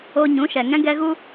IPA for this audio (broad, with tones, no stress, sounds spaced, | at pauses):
o˧ ɲ ũ˨˦ ʃ ɛ˨ ŋ ɛ̃˦ ɡ ɛ˦ ɣ u˦